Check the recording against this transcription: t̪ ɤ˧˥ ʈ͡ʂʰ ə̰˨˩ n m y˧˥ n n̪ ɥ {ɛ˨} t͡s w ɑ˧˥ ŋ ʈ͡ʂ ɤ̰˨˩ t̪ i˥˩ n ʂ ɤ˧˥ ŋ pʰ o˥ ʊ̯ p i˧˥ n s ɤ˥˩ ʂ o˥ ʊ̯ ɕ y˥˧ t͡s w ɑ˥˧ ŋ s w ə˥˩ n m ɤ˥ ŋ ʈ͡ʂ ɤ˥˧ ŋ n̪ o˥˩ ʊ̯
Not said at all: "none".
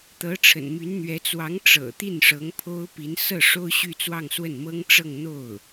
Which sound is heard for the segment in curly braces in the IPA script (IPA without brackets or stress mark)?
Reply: ɛ˧˥